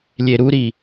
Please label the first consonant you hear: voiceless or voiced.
voiced